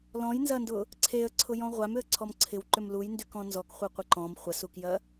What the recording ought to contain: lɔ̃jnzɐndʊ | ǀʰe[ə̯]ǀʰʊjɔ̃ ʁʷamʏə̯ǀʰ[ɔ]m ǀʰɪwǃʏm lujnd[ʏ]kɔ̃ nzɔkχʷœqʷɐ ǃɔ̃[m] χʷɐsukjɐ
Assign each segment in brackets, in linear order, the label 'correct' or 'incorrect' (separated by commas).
correct, correct, incorrect, correct